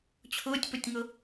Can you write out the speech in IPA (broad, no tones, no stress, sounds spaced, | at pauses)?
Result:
t͡ɕʰ ʊː tʲ p ʊ tʲ ŋ ʊ